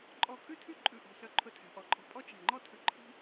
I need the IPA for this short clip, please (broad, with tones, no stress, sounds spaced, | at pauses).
ǃʼ ɔ˧˩ kʼ ʉ˥ tʰ ʉ˥˧ ǃʼ ʉ˧˩ ʔ ɔ̤˧˩ s œ˧ ǃʰ ɵ˧ tʰ æ̤˩˧ ʔ ɔ˩˧ ǃʼ ɔ̤˧˩ pʼ ɔ˥ t͡ʃ æ̤˧˩ ŋ͡ǃ ɔ˥ tʰ ʉ˧˩ ǃʰ i̤˥